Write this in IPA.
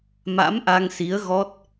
ma̰˧˥mʔa˧ŋsi˨˦ə̯ ɣɔ˦˥t̚

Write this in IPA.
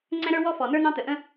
ŋ͡ǀɛ̃˦ɾə˞˦ wɔ˦fɔ˨nə˞˦ n̪ɑ̃˦t̪ə˨ ʔə̃˦

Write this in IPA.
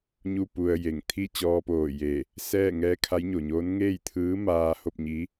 ɲu˥˨pu˧ə̯je˧˩ŋ t̪ʰi˥˨t͡ɕɔː˧poː˧˩je˧˩ | sɛː˥˨ ŋɛː˧˥kʰa˧˥jɲo˩ɲoː˧˥n ŋeː˥˨jt̪ʰɯː˧˥maː˧ho˥˨p̚ ɲi˧˥

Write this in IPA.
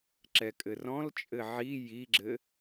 ǁɛkʼɘrɔ̃lt͡ʃʼɘ ʕi jiɡ͡ǁɘ

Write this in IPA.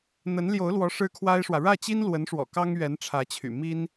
n̪ə˧˥nljo˧˥ʊ̯lwɔ˧˥ ʂɻ̩˥kʰwa˥ɪ̯ʂwä˨ ɻä˥˩ t͡ɕi˥nlwə˧˥nʂwɔ̰˨˩ kɑ˥ŋɥɛ˧˥n ʈ͡ʂʰä˧˥t͡ɕʰy̰˨˩ mi˥n

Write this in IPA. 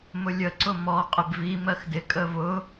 mʊlʲə ǀʊmɔ qʼɪbvi mɜxdɪ kʼəvʊ

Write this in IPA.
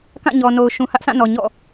kã˦˨ɲɔ˨no˨ʊ̯ ʃũ˨hä˦ʔsʰã˦˨nɔ˨ ɲɔ̰˦˨

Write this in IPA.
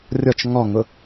rʲɔt͡ʃ ŋɔŋʊ

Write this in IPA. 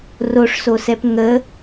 roʂsosɛp ŋə

